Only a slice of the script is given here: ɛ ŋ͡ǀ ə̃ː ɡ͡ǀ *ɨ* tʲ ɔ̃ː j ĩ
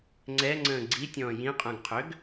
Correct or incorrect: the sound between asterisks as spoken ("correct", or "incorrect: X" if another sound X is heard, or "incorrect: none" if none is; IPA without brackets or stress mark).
incorrect: i